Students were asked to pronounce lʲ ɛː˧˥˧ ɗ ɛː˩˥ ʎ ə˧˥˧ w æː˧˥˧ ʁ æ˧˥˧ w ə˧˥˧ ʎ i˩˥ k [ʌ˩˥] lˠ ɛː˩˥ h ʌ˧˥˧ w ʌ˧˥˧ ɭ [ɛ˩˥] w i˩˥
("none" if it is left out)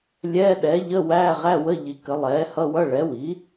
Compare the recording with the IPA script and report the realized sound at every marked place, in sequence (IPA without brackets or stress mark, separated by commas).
ə˩˥, ɛ˩˥